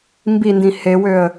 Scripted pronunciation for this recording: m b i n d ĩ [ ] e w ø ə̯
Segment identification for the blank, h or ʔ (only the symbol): h